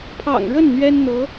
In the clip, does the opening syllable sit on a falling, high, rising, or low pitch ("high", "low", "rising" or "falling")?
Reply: low